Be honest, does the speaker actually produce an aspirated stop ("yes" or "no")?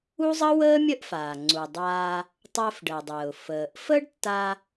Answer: no